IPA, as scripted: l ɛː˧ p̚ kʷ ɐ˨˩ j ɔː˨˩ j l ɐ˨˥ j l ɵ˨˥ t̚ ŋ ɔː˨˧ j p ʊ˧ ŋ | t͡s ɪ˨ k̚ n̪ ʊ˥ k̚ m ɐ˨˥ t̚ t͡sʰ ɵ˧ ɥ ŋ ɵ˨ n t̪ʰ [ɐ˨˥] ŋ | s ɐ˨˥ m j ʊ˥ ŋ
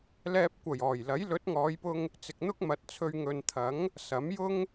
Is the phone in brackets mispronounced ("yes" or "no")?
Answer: no